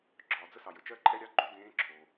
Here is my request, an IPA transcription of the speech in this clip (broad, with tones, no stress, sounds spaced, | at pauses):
ɡ͡ǁ ɒː˩ d͡z ə˥ s ɑ˩ j ə˩ t͡ʃ ɜ˥ ǃʼ ɛ˥ ɾʲ ɑ˧˥ ɡ͡ǃ o˧˥ d ẽː˧˥ ǁʰ o˩